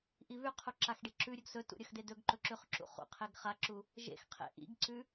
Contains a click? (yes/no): yes